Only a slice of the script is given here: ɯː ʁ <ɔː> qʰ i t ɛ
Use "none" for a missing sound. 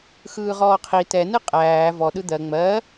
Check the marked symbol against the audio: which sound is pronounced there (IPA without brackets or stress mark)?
ɔː